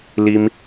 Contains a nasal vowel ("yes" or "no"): no